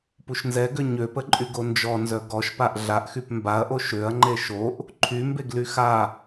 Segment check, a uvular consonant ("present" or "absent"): absent